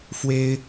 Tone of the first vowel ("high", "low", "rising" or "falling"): high